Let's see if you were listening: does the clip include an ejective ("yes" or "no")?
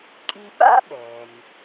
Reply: yes